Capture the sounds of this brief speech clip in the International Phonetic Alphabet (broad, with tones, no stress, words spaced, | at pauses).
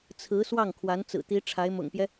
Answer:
t͡sʰɹ̩˧˥ swɑ˥˩ŋkʰwa˧˥nt͡sɹ̩˨˩t̪i˧˥ ʈ͡ʂʰa˧˥ɪ̯mʊ̰˨˩ŋpjɛ˦